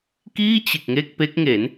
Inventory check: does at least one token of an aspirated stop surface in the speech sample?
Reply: no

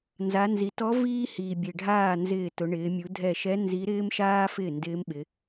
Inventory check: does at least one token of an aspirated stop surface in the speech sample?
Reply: no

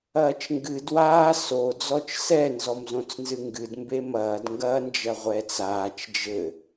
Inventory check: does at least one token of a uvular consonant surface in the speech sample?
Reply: yes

